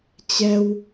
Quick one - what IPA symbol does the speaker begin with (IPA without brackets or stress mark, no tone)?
t͡ɕ